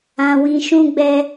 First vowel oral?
no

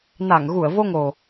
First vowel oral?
yes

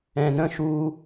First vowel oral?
no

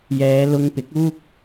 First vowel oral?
yes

